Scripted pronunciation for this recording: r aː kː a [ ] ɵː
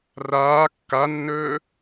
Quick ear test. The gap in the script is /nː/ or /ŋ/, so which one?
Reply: nː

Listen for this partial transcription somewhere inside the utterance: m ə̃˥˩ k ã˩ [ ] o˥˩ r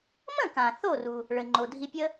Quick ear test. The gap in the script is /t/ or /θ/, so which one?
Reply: θ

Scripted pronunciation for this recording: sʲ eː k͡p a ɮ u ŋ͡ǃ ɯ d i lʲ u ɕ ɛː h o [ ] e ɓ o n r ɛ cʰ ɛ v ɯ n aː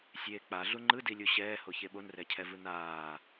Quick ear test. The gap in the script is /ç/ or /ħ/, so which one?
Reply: ç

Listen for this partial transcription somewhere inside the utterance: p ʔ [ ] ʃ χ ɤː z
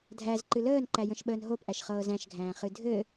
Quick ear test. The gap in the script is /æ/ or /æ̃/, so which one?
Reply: æ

